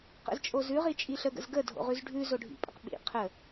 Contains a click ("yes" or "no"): no